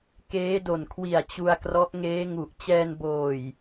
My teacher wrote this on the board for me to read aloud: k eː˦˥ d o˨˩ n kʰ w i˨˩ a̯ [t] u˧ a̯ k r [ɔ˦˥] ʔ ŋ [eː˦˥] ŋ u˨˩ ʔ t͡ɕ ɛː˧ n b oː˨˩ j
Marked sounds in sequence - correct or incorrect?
incorrect, correct, correct

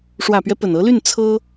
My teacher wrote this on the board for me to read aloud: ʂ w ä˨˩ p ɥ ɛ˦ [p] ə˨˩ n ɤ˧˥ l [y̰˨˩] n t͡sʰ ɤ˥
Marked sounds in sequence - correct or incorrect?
correct, incorrect

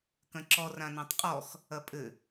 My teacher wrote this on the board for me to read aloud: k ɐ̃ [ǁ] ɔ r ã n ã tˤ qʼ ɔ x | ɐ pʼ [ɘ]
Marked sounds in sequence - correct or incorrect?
correct, correct

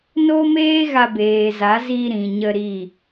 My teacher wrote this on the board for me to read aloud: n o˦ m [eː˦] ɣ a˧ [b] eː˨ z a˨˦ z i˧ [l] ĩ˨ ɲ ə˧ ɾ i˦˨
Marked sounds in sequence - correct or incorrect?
correct, correct, incorrect

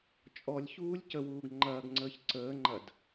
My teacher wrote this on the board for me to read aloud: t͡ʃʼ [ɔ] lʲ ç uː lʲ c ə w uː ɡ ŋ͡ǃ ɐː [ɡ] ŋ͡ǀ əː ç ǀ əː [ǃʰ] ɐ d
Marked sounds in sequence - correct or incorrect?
correct, correct, incorrect

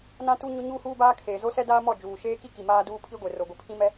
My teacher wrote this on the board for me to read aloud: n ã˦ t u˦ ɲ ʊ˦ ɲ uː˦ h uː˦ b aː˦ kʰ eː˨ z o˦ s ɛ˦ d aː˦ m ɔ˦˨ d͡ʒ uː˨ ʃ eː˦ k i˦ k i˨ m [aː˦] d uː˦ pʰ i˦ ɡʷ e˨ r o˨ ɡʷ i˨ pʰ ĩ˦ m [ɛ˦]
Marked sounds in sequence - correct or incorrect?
correct, correct

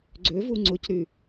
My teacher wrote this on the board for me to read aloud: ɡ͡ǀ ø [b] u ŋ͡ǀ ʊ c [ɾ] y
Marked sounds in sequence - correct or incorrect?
incorrect, correct

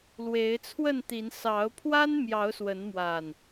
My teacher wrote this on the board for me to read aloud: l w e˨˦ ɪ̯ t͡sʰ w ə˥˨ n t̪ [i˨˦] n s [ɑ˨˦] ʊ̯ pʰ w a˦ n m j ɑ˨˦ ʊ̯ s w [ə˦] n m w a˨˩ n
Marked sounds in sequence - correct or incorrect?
correct, correct, incorrect

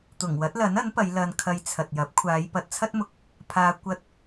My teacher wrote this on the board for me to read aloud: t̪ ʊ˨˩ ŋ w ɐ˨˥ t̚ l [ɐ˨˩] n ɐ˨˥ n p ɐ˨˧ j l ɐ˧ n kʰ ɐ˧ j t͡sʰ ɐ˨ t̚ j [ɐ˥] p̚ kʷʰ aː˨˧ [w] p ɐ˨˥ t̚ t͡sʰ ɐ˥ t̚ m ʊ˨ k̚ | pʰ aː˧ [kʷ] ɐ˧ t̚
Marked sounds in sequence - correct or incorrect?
incorrect, incorrect, incorrect, correct

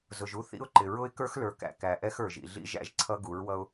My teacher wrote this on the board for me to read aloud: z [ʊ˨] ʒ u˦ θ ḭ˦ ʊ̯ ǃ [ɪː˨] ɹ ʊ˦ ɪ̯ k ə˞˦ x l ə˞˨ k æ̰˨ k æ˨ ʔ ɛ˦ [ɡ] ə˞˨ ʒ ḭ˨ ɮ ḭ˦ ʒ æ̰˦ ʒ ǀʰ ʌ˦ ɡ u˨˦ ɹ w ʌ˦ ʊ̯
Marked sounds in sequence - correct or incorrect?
correct, incorrect, incorrect

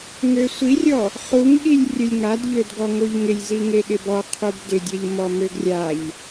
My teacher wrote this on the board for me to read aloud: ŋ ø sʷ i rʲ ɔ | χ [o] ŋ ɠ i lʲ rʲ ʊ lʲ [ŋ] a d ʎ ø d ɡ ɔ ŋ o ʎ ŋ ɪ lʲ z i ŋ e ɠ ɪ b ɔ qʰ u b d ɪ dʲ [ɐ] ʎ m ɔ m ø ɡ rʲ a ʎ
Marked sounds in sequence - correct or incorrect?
incorrect, correct, correct

